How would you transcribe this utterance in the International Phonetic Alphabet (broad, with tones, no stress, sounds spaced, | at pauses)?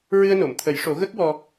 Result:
ɹ ɨ˧ ə̯ n o˨˩˨ m t̪ʰ ə˨˩˦ j ʂ o˨˩˦ ɣ ə˦˥ k̚ w ɔ˧